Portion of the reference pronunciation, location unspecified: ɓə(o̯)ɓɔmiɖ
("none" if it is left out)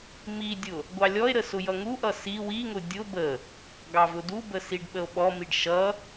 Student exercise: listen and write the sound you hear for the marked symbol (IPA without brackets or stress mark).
o̯